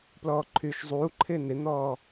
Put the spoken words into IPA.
plɔːǃʰyːʃzˤuːǃʰɪː nɪn̪ɔː

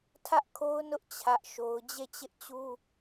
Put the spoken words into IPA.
tʰä˦ʔkʰo˦ʊ̯nʊ˦ʔ t͡ɕʰä˦ʔ ʃo˦ʊ̯ d͡ʑe˦˨t͡ɕɪ˦ʔt͡ɕu˦

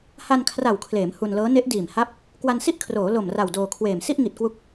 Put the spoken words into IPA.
ha˧nkʰra˨˩wkʰleː˩˦m hu˧nlɤː˦˥ ne˦˥ʔdiː˨˩m ha˥˩p̚ | kwa˧nsi˥˩ʔkʰroː˩˦ lo˨˩m ra˨˩wdoː˧kʰweː˨˩m si˥˩ʔŋi˨˩t̚kwu˦˥k̚

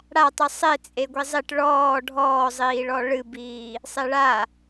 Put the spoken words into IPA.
ɽatˤɨ sˤe t͡sʼeɡʷizˤiʈ ɭɔː ɖʱɔːzˤiːɭɔ ɭɨbiː | sˤeɭa

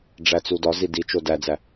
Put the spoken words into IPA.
ɖ͡ʐæt͡sudɒzi dit͡ʃo dæd͡zæ

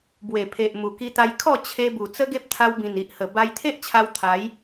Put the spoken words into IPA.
bwe˨˩pʰe˨ʔ mu˨˩ki˧t̪a˧jkʰɔ˥˧ t͡ɕʰe˧bu˨˩ t͡sə˦ɡe˦p̚ t̪ʰa˧wbĩ˨˩ni˨ʔhə˨˩ ba˧jt̪ʰe˦ʔt͡ɕʰa˧w t̪ʰa˨˦j

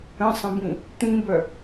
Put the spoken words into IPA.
ə̃sˤə̃bĩ | t̪ĩbœ

